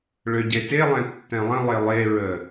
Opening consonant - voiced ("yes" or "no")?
yes